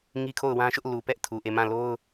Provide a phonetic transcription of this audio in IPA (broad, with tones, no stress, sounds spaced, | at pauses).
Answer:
ŋ i˦ kʰ o˦˨ ʊ̯ w ã˦ ʃ ʊ˦ ʔ l u˨ p ɛ˦ ʔ tʰ u˨ ʔ e˦˨ m ã˦˨ l o˦ ʊ̯